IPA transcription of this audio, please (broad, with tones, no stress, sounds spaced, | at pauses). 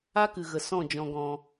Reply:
a˦ k ɨ˨ ɣ ə˨ s ɔ̃˦˨ d͡ʒ ɔ̃˧ ɡ ɔ̃˧